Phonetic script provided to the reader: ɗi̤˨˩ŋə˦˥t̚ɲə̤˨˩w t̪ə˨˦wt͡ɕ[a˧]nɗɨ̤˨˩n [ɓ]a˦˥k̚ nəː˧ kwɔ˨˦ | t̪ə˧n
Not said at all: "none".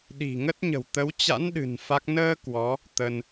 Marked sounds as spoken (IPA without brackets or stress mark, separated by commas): a̰˧˥, f